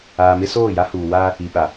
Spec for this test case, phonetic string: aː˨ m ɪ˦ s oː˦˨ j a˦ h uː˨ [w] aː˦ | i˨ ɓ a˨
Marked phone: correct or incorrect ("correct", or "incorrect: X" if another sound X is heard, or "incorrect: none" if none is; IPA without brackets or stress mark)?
correct